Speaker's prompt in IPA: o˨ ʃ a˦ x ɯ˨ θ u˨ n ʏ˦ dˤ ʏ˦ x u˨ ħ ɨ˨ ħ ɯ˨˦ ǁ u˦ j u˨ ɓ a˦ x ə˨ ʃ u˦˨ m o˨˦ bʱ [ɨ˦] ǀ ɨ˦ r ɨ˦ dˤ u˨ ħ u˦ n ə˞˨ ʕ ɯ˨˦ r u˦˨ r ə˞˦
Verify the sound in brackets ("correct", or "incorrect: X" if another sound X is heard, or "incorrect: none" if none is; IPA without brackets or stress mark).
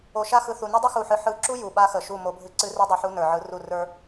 correct